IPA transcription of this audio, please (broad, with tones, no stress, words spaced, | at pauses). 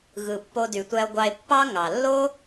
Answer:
ɣɯ˩ pːo˨dy˩tʷæ˨o̯ɡʷɑ˨e̯ pːɑ˦ŋɑ˩ lːo˦